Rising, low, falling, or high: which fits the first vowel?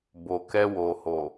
low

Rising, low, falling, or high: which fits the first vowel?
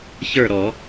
falling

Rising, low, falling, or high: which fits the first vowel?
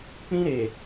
high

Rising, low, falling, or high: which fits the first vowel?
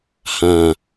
low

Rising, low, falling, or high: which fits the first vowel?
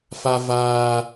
low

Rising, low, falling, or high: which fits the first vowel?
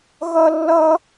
high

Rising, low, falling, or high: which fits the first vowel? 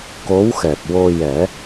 rising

